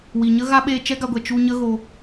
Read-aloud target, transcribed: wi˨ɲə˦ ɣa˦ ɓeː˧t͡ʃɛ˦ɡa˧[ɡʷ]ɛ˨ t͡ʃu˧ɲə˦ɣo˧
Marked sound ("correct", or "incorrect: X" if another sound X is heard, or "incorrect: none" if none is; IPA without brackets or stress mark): correct